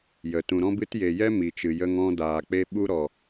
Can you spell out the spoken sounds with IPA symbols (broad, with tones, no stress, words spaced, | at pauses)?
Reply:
jə˨ tũ˨ɾɔ̃˦bɨ˦t je˨jɛ˦ mi˨t͡ʃɨ˨ jə˦ŋɔ̃˦ daː˨k͡pe˦ ɓu˦ɾɔ˨